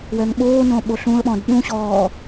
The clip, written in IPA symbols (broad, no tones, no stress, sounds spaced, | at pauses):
w ɛ ŋ ɓ oː n õ ɓ o ɬ ũ ə̯ ɓ ɔ̃ d ɗ ũ ɕ ɔː